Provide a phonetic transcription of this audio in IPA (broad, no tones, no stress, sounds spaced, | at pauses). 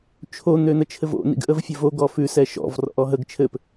t͡ʃʰ o n̪ ø n̪ ə t͡ʃʰ ɘ v o̰ n ḭ ɡ ʔ ə v fʲ ɘ v o ɡ ɔ f ʉ s ɛ ʃ ɔ̰ v r ɔ̰ ʔ ɔ ɦ ə ɡ t͡ʃʰ ɘ p